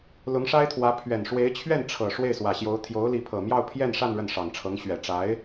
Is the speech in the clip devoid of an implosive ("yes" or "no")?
yes